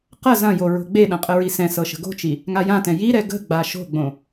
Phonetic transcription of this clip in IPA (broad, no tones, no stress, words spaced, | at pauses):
qɐ zɐ̃jo ɹo̤ɡ͡beɗɐ̃ qʼəɹisɛ̃sɤ ʃə̤ɡo̤t͡ʃi | ŋajãtɛ̃ jiɾɛ ɡə̤ɡ͡ba ʃo̤ɡ͡bõ